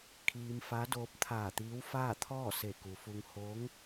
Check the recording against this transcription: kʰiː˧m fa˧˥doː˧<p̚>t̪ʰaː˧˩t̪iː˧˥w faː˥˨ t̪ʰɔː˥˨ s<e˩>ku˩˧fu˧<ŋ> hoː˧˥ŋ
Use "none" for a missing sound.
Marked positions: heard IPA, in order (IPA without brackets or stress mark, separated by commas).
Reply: p̚, e˧˩, ŋ